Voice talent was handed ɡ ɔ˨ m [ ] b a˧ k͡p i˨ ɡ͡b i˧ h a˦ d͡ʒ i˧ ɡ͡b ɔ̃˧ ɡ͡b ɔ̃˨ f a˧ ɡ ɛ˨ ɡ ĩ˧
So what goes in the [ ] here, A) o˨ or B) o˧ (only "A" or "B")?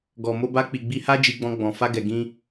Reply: B